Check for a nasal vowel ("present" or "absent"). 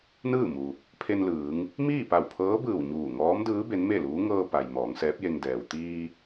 absent